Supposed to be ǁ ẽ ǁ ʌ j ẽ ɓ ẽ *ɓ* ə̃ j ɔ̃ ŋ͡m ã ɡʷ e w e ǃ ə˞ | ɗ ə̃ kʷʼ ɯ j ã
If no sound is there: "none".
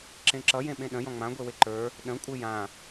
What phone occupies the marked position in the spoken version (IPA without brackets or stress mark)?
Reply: ɗ